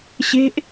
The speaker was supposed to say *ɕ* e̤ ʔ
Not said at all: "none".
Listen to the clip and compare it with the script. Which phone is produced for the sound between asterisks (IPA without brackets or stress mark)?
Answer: ɕ